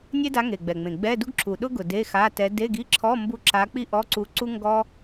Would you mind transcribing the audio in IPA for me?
nʲ e˥ d a˧˥ ŋ e˨˩ ɡ͡b ɛ˨˩ ŋ͡m ẽ˨˩ ɡ͡b ɛ˧˥˧ d u˥ ɡ ǁʰ u˨˩ ɗ ʊ˥ ɡ ʊ˨˩ d e˧˥˧ x a˧˥˧ t ɛ˧˥ d e˧˥˧ ɡ i˧˥˧ ǁʰ ɔ˧˥˧ m b u˥ ǁ a˧˥ k͡p i˥ ʔ ɔ˧˥˧ ǀ u˧˥ ǀ u˥ ŋ ɡ ɔ˥

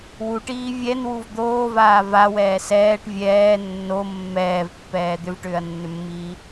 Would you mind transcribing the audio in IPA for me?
w u ʈ iː vʲ ɛ n w u v d̪ oː v aː v a w ɛː s ɛː ʈ vʲ ɛː nː o mː ɛː v pː ɛː d̪ ʏ v ʈ ʏː ɐ̯ nː ʏ mː iː

